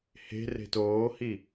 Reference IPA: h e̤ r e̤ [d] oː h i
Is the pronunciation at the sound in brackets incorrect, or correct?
incorrect